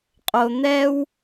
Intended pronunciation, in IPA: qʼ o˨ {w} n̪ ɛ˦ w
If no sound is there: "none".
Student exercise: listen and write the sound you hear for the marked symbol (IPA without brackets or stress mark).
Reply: none